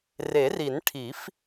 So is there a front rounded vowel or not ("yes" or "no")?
no